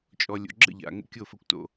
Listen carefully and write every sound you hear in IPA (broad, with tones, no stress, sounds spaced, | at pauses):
t͡ʃʼ ɔ˨ lʲ o̰˨ ɡ͡ǁ ə̰˦˨ ʎ a̰˨ ŋ ə̰˦ kʲ o˦˨ f ə˦ kʷ t o̰˦